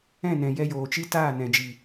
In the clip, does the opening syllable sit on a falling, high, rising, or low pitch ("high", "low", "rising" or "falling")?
falling